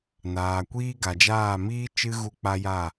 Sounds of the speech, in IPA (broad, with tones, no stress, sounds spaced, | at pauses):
n aː˨ kʷ iː˦ ɡ a˨ d͡ʒ aː˦˨ m iː˦ t͡ʃ ɨ˦ ɣ u˧ k͡p a˦ j a˦˨